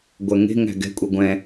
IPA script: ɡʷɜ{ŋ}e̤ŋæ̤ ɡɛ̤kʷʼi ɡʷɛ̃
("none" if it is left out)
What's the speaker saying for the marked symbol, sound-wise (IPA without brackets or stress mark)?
ŋ